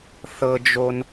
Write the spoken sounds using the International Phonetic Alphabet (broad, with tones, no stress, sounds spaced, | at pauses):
θ ɤ˧ d͡ʒ o˧ n